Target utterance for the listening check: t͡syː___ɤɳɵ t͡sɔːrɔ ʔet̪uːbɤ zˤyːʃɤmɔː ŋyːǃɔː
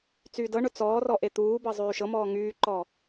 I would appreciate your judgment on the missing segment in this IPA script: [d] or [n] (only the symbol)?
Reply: d